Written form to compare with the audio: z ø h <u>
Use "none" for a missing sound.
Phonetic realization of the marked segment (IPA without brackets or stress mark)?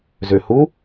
u